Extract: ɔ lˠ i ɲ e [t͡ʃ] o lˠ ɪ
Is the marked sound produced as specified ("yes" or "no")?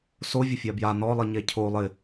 no